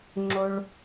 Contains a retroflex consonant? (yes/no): yes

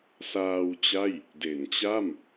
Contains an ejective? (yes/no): no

